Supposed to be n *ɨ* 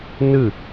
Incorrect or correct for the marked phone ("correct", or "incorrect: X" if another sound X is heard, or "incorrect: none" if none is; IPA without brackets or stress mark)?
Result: correct